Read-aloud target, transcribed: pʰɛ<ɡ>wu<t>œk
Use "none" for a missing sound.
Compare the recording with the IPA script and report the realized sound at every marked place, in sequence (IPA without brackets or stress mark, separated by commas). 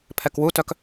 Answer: k, t